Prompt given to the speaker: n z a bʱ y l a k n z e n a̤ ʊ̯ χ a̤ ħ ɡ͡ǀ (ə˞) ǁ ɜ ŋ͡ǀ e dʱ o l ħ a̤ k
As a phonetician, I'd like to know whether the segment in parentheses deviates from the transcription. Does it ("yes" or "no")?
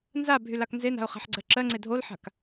yes